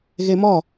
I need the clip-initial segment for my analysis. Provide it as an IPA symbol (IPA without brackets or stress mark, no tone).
ɣ